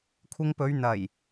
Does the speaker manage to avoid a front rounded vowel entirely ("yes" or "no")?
yes